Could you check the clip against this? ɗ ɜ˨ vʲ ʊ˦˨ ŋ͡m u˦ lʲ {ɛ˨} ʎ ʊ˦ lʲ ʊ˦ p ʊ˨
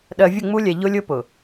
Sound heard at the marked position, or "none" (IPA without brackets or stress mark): ɛ˨